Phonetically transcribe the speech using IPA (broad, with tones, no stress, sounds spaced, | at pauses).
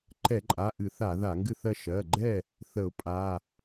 ǃ ɛ˧˩˧ ǃʼ a˩˧˩ ʔ ɨ˧˩˧ θ a˧˩˧ ð a˧˩˧ ŋ ɡ ɨ˥˨ θ ɜ˥˨ ʃ ɜ˩˧˩ ɡ͡ǃ ɛ˥˨ | θ ə˧˩˧ ʊ̯ pʼ a˩˧˩